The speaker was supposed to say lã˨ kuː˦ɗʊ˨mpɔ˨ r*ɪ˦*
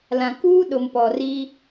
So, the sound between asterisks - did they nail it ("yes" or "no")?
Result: no